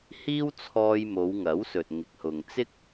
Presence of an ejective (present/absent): absent